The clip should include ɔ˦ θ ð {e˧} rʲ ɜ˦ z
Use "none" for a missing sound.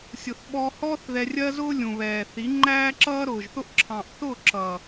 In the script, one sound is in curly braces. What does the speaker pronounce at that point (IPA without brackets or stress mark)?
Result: ɛ˧